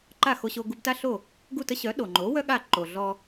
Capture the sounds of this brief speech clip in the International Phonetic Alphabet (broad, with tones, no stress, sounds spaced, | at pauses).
ǃ a˥˩ x o˧ ɕ o˧ ɡ u˧ b t a˥ ɬ o˥˩ | ɡ u˥˩ t ə˥ ɕ œ˩˥ ɗ o˩ ŋ͡ǃ o˩˥ w œ˥ ɠ a˥˩ ǃ o˩ ɮ ɔ˧